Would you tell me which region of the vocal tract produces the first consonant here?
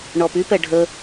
retroflex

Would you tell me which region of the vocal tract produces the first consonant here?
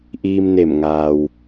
throat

